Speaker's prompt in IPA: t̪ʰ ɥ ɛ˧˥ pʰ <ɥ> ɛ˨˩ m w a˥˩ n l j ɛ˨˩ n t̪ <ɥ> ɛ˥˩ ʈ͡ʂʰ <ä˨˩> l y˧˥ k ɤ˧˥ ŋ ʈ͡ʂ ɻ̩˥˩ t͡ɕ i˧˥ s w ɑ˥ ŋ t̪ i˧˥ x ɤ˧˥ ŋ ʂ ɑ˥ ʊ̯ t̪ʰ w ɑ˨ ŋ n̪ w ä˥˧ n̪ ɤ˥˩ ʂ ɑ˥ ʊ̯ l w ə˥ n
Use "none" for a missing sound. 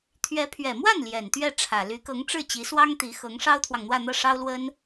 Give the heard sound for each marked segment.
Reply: ɥ, ɥ, ä˨˩

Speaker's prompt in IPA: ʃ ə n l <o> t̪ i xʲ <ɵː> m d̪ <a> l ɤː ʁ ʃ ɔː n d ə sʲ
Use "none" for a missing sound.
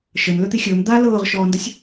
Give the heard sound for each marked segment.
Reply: ɵ, ɵː, a

